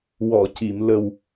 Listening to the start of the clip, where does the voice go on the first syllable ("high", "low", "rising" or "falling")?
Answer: low